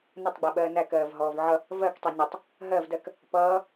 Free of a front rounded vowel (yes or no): yes